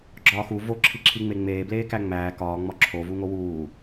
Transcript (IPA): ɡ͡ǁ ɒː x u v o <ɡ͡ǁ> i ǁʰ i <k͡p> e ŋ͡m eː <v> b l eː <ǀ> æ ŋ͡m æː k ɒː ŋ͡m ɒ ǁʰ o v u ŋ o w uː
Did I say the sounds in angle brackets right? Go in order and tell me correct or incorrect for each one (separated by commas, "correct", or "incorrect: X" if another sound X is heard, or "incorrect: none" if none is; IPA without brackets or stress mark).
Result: incorrect: ǁʰ, incorrect: ŋ͡m, incorrect: none, incorrect: k